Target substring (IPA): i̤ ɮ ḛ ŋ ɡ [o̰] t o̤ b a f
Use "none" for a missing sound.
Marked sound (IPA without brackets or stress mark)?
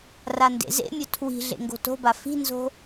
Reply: o̤